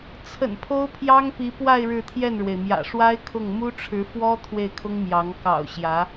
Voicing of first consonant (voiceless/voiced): voiceless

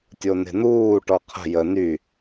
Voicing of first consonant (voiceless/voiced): voiceless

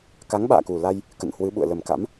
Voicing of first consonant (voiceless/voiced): voiceless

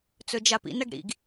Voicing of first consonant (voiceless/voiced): voiceless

